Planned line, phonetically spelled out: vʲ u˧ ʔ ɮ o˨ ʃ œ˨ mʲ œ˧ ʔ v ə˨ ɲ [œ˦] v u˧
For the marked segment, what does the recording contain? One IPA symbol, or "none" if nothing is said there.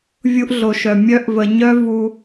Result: œ˦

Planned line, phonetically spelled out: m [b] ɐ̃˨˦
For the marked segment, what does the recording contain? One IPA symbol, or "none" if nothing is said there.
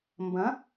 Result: b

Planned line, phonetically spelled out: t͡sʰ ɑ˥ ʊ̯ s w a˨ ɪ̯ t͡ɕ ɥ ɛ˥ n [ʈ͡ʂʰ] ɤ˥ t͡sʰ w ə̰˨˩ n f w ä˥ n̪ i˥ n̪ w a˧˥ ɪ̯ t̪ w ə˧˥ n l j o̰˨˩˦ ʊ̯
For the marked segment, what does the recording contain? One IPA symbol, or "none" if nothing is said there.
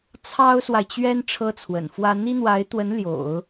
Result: ʈ͡ʂʰ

